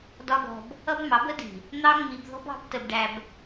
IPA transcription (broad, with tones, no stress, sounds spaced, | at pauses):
d ɒ˦ ɡ ɔ̤˧ b | ʌ˦ b m ɑ˨˦ b ə˦ d i̤˨ | n̪ ɑ˦ ŋ͡m i˧ b ð ɔ̤˦ b ɑ̤˨˦ b t ə˧ b ɖ æ˧ b